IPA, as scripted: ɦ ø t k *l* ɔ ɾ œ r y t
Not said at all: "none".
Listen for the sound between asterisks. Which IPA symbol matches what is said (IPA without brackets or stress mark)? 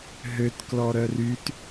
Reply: l